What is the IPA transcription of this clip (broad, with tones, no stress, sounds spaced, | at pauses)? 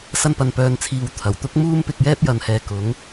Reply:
s ɐ˧ n p ɐ˨ n p œː˨ n t͡sʰ iː˨ w t̪ʰ ɐ˨˩ w t̪ ʊ˥ k̚ m uː˧ m p ɪ˧ k̚ j ɛː˥ p̚ j ɐ˨ n h ɛː˨ k ʊ˨˥ ŋ